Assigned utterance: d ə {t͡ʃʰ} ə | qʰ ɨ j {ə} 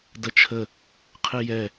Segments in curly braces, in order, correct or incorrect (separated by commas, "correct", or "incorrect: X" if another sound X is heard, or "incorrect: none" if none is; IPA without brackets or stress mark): correct, incorrect: ɛ